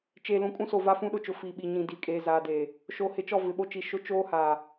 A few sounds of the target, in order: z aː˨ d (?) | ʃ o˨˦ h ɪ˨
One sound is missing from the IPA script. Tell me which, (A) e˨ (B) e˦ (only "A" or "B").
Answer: A